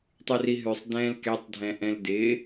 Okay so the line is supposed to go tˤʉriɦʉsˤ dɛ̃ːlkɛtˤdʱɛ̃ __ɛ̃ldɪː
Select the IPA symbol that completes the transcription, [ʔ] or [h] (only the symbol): ʔ